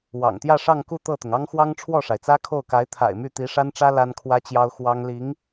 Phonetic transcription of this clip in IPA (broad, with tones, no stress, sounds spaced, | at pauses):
w ɑ̰˨˩ ŋ t̪ j ä˥˧ ʂ ɑ˥˧ ŋ k u˥˧ t̪ ɤ˥˩ t̪ ʊ˩ ŋ ɑ˥ ŋ x w ɑ˥ ŋ ʈ͡ʂʰ w ɔ˥˩ ʂ a˩ ɪ̯ t͡s ä˥ kʰ o˥˩ ʊ̯ k a˧˥ ɪ̯ t̪ʰ a̰˨˩ ɪ̯ m y˥˩ t̪ i˧˥ ʂ a˥ n ʈ͡ʂ ä˥ l a˥ n kʰ w ä˥ t͡ɕ j ɑ˥ ʊ̯ x w ɑ˥ ŋ l i˧˥ ŋ